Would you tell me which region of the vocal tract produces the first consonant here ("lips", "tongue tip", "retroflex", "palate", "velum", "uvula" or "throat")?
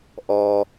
throat